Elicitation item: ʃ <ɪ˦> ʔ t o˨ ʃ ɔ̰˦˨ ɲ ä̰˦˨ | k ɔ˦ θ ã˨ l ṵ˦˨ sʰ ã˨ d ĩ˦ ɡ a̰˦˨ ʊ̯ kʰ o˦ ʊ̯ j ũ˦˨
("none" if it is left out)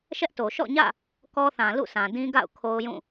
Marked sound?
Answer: ɛ˦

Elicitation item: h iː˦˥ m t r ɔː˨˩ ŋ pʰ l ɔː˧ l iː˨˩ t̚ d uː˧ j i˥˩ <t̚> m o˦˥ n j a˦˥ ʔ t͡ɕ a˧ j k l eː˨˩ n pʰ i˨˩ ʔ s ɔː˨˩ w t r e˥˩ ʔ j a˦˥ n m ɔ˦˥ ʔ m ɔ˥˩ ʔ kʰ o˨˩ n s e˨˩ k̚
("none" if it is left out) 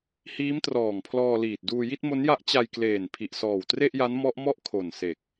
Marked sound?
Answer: t̚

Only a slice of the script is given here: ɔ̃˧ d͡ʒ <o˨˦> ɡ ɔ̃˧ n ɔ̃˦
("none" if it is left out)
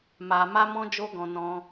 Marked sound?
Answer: o˧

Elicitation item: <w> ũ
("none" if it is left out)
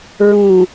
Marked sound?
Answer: ɹ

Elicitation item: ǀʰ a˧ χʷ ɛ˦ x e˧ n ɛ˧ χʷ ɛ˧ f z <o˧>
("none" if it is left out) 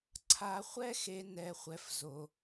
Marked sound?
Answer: o˧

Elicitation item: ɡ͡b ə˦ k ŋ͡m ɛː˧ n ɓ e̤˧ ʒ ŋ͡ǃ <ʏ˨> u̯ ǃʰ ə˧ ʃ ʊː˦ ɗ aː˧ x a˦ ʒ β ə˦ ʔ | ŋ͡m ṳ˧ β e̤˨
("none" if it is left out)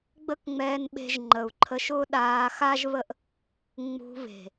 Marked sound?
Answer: ə˨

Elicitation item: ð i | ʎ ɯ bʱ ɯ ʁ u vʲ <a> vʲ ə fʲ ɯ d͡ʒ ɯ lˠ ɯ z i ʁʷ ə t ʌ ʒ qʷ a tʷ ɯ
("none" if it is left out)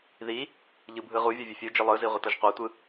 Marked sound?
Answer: ʌ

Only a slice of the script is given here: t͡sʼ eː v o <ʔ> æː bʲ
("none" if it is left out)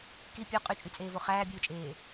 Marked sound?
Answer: χ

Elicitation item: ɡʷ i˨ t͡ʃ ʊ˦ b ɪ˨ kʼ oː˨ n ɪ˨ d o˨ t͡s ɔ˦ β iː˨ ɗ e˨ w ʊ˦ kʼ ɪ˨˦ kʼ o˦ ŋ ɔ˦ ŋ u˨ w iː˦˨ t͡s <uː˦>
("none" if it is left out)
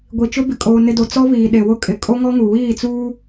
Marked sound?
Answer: uː˦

